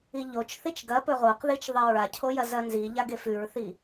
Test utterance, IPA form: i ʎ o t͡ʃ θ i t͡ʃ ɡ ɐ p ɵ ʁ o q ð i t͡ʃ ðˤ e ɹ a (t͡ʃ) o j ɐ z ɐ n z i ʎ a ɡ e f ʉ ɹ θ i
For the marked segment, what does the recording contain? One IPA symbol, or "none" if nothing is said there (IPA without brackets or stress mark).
cʰ